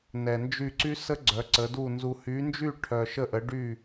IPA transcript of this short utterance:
n ɛ˨ n d͡ʒ y˦˨ ǀ y˦˥ s ə˦˥ ɡ͡ǀ œ˨˦ ǀ ə˨˦ d u˦˨ n z u˨ h y˨˦ n d͡ʒ y˦˨ ʈʰ œ˨ ʃ ə˦˨ ʔ ə˨˦ ɖ y˦˨

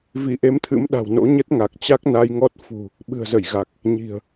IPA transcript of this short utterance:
v i˧˩ ʔ e˨˦ m t̪ʰ ɨ̰˧˥ m ɗ a̤˨˩ w n o̰˧˥ ɲ ə˦˥ t̚ ŋ a˨˩ k̚ t͡ɕ a˦˥ k̚ n a˧ j ŋ ɔ˦˥ t̚ f ṳ˨˩ | ɓ ɨ̤˨˩ ə̯ z ə˧˩ j ɣ a˨˩ k̚ | ɲ i̤˨˩ ə̯

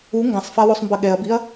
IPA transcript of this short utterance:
u ŋ ɡ ã sˤ f a w o sˤ m b ɐ ɠ ɛ ɐ̯ b i ɐ̯

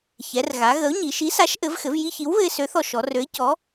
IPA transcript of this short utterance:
ç ɛ˩˧ r ɣ a˩˧ ɣ ə˨˥ ʊ̯ ɲ i˩˧ ʃ i˨˥ s a˨˥ ʃ ʔ ɘ˨˥ v x ɘ˨˥ v j i˧ ç i˨˥ w β ɘ˧ ɪ̯ s ø˨˥ θ ɔ˧ ʃ ɔ˩˧ r ø˨˥ ɪ̯ c ɔ˨˥

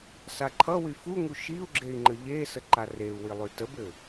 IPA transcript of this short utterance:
s a ǃʰ ʌ w y f u ŋ u ʃ i u̯ ɡ͡ǁ e i̯ ŋ͡ǃ ə ʎ e s ə ǃ a r e u̯ w i lˠ y t ə b ɘ

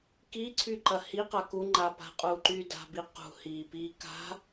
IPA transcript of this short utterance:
k i ǀʰ y ǃ ɐ h i q a k u ŋ͡ǃ a p a̤ qʼ uː ǃ yː d a̤ b i q ṳ h iː p iː k a̤

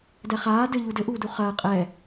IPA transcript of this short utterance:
d ɛ χ aː d ɘ ʎ u d ɘ ʔ uː d u χ ɐː qʼ ɛ

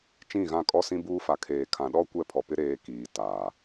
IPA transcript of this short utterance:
t͡ʃ ĩ˦˨ ɣ ã˦˨ kʼ ɔ˦ s ĩ˦ b uː˦ f a˨ kʰ eː˨ kʰ ã˨ ɗ ɔ˦ kʷ ɛ˦˨ pʰ ɔ˨ p ɪ˦ ɾ eː˦ k iː˨ t aː˨

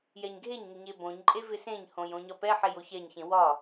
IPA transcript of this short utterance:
j ɛ ɲ ɡʱ e ɲ ŋ ɪ ɲ e b õ ɲ ǃʼ e v ɪ s ẽ ɲ h õ j õ ɲ ɒ p ɛ ħ e j o ç ɛ ɲ ç ẽ w ɒ

